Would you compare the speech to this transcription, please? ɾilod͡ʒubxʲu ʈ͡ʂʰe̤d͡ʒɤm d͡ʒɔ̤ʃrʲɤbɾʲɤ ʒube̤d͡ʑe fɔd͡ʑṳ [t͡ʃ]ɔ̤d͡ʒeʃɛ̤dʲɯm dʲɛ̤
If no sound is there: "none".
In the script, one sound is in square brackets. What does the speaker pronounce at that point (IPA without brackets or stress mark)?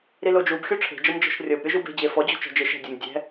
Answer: t͡ʃ